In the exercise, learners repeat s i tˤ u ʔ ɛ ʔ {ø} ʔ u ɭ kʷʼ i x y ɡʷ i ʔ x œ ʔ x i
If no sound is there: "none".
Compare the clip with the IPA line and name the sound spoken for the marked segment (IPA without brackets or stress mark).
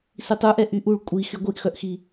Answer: y